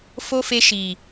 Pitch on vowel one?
high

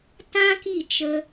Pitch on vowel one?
high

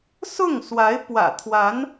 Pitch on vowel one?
falling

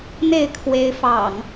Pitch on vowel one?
falling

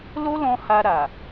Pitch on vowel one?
high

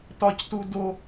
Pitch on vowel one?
high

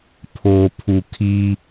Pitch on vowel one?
low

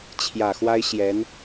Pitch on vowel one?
low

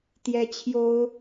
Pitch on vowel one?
high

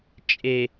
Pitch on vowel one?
low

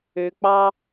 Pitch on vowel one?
low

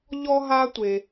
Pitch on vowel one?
high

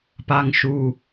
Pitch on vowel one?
low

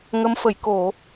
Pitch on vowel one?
rising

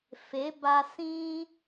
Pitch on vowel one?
rising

